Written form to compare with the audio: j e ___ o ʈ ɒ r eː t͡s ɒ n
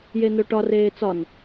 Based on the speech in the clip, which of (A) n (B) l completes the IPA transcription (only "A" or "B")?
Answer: A